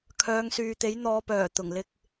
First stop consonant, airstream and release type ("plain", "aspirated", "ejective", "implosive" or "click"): aspirated